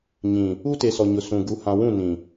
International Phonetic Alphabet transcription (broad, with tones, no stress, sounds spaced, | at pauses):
ɲ ĩ˨ | u˦ t e˨ s ɔ˨ ɲ ʊ˨ s ũ˨ ɡ u˨ h ã˨ w ũ˦˨ n ĩ˨